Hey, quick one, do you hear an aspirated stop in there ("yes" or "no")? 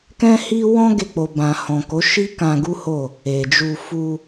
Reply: no